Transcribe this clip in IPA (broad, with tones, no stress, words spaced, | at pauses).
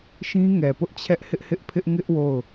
ʃĩ˦ŋɛ˨pʊ˦ʔ t͡ɕʰɛ˦ʔhɪ˦ʔhɪ˦ʔpʰɪ˦ʔ ŋɪ˦ʔ wo˦˨ʊ̯